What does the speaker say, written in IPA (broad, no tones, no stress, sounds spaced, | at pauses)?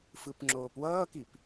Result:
f ɯ p ŋ͡ǁ oː p w ʌː k i p